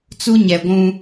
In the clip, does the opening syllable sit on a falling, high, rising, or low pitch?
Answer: high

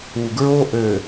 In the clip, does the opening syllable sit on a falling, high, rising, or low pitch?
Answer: low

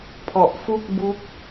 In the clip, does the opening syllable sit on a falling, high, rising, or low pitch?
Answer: low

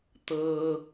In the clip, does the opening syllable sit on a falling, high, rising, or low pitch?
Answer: high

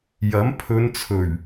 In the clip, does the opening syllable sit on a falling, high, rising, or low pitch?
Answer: rising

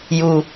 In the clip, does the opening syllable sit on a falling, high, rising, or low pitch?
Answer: low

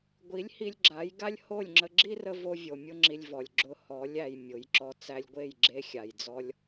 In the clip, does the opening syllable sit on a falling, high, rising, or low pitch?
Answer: rising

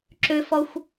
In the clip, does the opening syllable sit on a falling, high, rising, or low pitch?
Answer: high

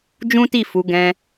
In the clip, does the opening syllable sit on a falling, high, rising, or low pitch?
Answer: high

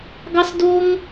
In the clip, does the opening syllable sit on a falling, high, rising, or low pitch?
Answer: high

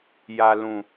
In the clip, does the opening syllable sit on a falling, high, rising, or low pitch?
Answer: low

